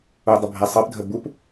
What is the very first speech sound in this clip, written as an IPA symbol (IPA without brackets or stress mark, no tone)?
u